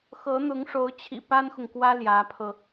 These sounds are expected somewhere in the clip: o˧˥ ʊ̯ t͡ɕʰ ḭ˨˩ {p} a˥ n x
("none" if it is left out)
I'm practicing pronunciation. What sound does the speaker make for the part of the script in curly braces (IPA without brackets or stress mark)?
p